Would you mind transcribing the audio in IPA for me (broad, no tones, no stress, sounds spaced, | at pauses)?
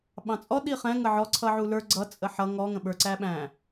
ɓ ɑ̃ t͡sʼ ɔ ɗ i χ ɛ̃ ŋ ə ʕ ɔ ǀʰ ʌ ʕ u l ə˞ ɡ͡ǀ ʌ t͡sʼ ə ħ ʌ ŋ ɔ ŋ ə̃ ɓ ə˞ ǀ æ ɓ æ̃